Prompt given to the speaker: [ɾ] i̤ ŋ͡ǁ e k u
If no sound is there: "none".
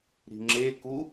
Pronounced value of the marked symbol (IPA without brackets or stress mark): ɾ